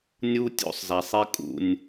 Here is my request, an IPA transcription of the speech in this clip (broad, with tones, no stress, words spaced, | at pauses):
nʲu˦tʲo̰˦sˤza˨sˤi˦ kʼṵ˦nʲ